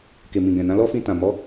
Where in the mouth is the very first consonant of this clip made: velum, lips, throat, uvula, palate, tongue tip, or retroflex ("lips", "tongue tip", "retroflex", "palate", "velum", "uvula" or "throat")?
velum